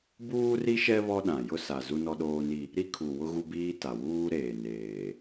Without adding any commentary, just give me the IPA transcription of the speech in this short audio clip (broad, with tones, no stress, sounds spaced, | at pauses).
b uː˦ r i˦ ʃ ɛ˦ β ɔ˦ ɗ ã˨ j ʊ˦ s a˨ z u˦ n ɔ˦ ɗ oː˦ n i˦ | ɾ i˦ kʰ u˨ w ʊ˦ ɣ u˦ b iː˦ t a˨ w uː˦ ɾ eː˨ n eː˨